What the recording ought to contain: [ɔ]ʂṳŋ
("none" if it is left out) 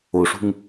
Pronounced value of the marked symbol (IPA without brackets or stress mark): o